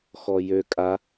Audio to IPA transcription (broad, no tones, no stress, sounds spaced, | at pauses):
x ɔ j ø kʼ a